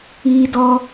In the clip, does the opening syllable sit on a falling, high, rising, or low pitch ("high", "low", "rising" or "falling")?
high